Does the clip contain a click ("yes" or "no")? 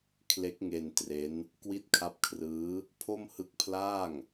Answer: no